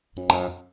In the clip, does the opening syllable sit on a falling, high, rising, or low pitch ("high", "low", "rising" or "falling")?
low